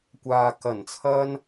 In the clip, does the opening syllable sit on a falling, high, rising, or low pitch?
low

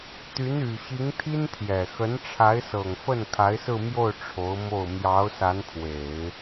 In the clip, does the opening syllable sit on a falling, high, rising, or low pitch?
rising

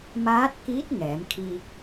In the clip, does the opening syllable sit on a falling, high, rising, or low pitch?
rising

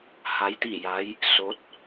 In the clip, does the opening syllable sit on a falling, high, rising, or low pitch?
rising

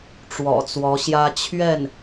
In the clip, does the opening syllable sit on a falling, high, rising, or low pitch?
low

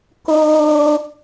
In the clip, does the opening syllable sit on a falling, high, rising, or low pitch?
high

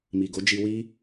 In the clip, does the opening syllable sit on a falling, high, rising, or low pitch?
low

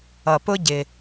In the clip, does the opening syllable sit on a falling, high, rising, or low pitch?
low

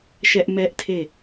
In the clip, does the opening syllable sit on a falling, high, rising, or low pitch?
high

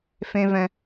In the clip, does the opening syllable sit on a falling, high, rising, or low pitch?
high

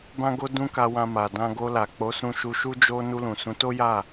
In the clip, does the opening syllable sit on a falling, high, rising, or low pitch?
high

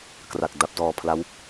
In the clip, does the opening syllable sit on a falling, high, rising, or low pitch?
low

